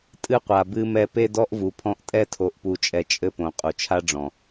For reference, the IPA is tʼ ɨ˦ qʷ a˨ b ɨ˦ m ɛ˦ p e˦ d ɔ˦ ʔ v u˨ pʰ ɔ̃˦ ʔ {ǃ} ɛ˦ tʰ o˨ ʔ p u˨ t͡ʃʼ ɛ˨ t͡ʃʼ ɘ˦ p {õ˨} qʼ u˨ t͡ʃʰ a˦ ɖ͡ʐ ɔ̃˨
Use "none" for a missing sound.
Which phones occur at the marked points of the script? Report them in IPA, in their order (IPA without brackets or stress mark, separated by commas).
tʼ, õ˨